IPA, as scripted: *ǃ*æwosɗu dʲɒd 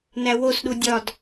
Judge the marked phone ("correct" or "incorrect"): incorrect